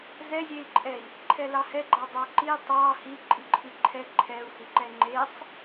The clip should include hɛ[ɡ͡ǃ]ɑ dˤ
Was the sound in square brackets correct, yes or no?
yes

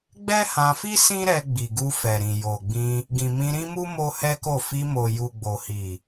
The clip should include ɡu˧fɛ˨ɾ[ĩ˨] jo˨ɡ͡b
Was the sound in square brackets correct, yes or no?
yes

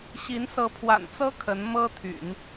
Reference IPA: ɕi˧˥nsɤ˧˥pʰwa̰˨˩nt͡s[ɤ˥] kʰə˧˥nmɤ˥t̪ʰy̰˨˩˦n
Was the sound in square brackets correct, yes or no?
yes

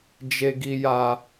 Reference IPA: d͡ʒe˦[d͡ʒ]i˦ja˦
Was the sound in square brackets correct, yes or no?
no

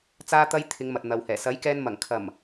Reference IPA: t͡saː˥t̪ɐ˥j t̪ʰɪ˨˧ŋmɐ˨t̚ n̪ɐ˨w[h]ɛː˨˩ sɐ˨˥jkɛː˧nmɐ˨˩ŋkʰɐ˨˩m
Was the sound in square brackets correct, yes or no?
yes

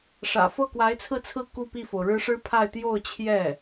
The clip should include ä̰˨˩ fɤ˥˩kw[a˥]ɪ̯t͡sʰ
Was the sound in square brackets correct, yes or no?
no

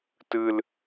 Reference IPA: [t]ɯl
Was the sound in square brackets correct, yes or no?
yes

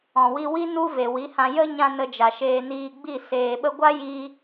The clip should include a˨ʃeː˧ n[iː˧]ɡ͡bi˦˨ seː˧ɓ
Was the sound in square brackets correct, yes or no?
yes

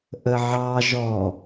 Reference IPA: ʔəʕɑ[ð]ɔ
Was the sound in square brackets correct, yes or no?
no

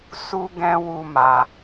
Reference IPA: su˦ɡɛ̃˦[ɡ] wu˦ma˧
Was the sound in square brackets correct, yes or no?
no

